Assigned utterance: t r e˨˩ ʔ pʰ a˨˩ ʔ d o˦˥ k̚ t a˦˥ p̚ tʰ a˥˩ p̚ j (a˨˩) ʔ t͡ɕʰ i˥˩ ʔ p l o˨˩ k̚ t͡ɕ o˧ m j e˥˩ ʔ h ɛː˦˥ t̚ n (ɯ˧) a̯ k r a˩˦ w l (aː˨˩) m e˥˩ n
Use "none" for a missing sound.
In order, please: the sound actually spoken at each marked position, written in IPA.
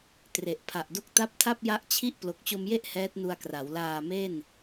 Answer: a˦˥, u˧, aː˨˩

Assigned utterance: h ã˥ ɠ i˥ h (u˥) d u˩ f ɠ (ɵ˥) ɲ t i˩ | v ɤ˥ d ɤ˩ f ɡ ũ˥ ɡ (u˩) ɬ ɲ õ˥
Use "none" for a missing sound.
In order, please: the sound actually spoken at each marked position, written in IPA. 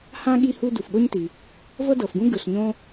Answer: u˥, o˥, ɯ˩

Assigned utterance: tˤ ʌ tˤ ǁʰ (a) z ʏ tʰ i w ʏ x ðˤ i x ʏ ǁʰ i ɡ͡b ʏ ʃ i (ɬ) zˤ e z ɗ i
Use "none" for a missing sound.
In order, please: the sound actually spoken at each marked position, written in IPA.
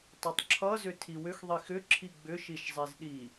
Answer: ʌ, ʃ

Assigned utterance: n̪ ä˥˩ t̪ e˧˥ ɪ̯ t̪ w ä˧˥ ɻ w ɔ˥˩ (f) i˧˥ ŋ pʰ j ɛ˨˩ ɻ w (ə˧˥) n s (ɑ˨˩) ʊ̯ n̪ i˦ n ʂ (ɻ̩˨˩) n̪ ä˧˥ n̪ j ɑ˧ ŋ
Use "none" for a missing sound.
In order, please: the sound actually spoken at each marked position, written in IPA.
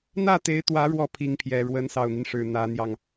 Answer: pʰ, ə˧˥, ɑ˨˩, ɻ̩˨˩

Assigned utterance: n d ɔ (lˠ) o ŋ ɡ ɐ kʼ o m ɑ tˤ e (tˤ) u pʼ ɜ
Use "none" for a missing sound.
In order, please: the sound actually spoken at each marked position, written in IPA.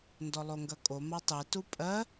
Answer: lˠ, t

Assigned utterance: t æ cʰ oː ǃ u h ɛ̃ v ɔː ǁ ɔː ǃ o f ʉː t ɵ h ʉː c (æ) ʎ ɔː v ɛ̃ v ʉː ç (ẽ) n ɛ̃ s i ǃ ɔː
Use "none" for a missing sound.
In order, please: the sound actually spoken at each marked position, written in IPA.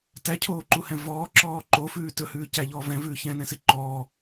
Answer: æ, ɛ̃

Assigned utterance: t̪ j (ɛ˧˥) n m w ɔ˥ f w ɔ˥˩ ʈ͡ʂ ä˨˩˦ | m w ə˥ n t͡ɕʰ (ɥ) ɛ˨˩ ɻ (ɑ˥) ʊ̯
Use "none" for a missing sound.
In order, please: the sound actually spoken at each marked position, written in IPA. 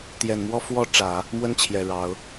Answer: ɛ˨˩, j, ɑ˧˥

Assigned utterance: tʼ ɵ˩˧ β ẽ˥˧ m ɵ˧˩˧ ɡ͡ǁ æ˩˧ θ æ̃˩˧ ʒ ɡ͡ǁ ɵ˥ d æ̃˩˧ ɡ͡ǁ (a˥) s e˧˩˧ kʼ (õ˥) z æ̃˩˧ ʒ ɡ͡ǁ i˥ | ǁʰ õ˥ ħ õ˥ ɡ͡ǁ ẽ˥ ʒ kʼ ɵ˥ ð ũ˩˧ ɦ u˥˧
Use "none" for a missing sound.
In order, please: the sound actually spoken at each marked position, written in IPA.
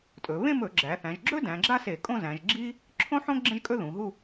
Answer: a˥, õ˥˧

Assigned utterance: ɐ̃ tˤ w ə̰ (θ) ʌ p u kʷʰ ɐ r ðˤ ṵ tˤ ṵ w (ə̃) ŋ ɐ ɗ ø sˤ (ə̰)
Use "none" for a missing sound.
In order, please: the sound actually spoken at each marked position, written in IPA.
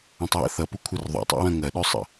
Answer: θ, ɐ̃, ə̰

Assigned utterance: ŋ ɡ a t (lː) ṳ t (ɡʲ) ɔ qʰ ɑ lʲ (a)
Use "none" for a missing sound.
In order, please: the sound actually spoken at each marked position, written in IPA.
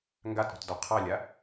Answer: ɾ, d, a

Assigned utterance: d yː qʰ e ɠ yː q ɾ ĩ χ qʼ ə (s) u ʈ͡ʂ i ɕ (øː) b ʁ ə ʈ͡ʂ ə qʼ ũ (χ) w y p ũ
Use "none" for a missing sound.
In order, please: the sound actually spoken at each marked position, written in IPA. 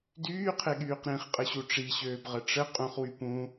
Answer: ɕ, øː, χ

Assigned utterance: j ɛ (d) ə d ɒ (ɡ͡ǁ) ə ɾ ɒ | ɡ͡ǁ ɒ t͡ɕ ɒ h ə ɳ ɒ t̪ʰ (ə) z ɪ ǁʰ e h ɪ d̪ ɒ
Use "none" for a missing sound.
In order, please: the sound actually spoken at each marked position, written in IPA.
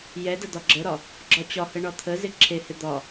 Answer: d, ɡ͡ǁ, ə

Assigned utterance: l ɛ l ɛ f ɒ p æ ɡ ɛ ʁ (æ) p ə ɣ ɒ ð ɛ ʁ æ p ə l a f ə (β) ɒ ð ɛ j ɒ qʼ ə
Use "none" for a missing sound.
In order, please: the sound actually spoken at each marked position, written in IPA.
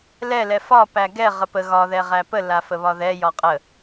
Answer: ə, β

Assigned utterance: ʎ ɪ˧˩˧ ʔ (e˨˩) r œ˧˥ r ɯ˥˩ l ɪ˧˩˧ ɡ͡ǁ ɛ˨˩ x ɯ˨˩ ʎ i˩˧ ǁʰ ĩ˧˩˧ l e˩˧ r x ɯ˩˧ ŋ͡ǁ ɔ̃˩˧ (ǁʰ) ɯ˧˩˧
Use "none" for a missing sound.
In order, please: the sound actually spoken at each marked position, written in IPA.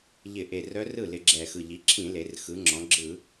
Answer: e˨˩, ɡ͡ǁ

